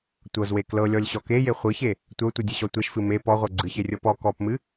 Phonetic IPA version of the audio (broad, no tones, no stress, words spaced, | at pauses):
tʷɤzwe klɤlʲɔlʲɕɔ keje χʷɨçe | tʷəʊ̯tʷɨdʲɨɕɔ tʷeʃfɨ me pɔʁʷɤ ɡ͡ǀɨçerʲɤ pɔ kɔpmɨ